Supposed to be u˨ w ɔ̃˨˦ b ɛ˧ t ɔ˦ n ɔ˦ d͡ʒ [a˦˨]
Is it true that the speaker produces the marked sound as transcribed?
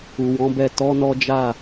yes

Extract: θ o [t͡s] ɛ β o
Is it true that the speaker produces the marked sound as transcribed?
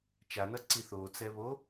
yes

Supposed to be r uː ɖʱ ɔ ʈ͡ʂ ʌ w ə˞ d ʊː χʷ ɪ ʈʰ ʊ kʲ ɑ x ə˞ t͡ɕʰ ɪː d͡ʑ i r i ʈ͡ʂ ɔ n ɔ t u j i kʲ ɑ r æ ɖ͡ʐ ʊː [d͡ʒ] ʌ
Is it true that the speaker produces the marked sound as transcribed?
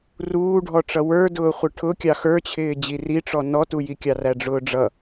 no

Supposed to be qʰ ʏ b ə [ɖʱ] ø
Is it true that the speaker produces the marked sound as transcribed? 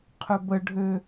yes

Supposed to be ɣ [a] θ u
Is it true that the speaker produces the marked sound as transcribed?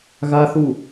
yes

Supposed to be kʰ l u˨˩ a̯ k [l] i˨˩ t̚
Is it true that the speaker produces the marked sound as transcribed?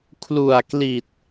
yes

